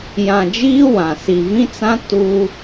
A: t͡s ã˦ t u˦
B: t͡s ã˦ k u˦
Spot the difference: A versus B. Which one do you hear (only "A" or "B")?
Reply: A